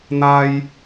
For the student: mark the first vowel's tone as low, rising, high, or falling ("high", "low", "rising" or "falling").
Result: high